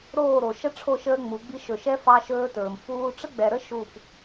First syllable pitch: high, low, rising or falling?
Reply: falling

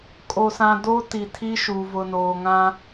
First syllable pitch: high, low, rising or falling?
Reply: low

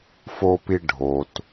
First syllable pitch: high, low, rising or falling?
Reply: high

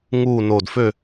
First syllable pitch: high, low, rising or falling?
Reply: low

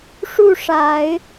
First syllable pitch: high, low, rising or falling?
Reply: falling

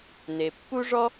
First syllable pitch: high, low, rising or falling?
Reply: low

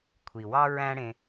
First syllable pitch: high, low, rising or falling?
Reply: low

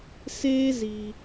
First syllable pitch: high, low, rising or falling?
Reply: high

